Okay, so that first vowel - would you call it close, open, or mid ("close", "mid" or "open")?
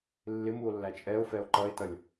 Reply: close